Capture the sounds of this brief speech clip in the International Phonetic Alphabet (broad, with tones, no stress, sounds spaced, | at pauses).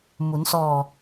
m u˩˧ n s ɔː˧˩